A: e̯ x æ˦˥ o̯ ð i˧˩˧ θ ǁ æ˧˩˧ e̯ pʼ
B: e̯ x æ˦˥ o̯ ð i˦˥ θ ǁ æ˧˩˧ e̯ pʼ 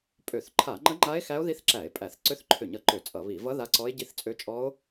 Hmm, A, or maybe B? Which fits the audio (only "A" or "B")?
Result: B